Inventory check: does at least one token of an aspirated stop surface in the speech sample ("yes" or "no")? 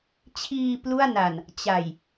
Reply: yes